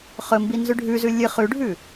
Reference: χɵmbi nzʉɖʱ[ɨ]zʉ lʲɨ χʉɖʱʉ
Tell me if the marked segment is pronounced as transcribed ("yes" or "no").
no